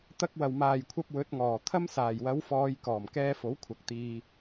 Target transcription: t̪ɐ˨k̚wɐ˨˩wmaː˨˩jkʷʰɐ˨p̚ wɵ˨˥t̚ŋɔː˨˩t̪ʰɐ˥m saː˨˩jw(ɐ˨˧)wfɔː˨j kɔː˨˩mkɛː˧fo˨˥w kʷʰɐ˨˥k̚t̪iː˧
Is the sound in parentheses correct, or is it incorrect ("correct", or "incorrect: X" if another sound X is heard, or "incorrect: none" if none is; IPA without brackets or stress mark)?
correct